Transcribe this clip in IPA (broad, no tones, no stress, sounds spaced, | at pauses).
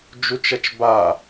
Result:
d͡ʒ u t͡ʃ ɐ t͡ʃ b a